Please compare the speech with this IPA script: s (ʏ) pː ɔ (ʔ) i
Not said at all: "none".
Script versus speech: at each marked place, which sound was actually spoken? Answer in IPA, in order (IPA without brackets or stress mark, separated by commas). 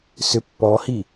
ʏ, h